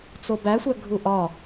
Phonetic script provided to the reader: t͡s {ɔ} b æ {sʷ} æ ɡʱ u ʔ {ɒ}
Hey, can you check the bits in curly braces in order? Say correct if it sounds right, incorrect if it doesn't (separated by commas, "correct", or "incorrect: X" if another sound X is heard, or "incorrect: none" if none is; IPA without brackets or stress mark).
incorrect: o, correct, correct